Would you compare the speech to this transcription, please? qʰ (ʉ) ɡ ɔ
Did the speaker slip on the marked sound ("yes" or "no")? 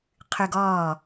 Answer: no